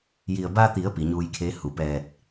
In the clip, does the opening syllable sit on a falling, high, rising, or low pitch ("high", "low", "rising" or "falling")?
low